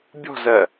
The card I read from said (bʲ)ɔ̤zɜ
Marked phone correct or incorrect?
correct